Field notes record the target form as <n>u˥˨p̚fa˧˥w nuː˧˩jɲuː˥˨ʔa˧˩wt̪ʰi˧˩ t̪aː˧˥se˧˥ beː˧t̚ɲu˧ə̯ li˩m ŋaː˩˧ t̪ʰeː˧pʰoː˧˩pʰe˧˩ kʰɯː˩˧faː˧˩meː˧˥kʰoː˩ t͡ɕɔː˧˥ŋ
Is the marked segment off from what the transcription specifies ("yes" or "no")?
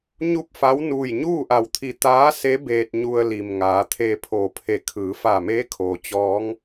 yes